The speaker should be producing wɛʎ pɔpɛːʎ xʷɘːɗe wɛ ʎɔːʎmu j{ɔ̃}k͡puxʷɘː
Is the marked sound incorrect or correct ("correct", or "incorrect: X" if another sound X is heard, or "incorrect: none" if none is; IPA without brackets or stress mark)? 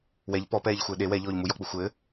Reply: incorrect: ɔ